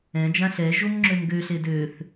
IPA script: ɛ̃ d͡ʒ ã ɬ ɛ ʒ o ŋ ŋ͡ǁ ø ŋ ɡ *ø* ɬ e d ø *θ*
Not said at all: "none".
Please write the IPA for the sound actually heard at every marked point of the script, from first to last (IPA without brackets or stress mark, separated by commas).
ø, θ